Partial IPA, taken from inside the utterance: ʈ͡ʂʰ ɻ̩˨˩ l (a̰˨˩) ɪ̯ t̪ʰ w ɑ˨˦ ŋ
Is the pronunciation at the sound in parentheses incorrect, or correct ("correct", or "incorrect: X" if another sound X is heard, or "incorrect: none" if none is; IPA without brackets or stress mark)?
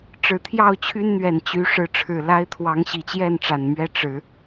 incorrect: a˦